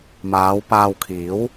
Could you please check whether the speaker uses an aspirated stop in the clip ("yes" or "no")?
yes